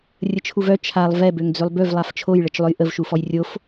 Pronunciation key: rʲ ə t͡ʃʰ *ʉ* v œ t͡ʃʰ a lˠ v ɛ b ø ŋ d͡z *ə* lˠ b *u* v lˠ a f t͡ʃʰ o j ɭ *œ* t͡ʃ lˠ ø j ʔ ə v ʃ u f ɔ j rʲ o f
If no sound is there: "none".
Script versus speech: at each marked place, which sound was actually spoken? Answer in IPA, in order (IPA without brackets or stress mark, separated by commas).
u, ø, ø, ə